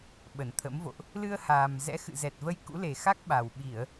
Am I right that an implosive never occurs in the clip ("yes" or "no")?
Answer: no